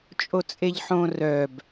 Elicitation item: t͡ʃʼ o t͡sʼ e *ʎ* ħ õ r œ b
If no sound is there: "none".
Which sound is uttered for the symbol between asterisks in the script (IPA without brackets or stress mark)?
ʎ